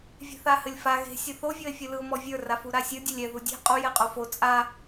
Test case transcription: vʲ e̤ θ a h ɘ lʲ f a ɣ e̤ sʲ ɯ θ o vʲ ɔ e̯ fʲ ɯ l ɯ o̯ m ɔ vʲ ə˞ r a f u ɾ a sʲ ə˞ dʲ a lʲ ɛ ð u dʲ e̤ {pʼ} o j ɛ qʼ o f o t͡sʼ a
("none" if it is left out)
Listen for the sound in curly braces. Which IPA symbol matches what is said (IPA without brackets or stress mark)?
qʼ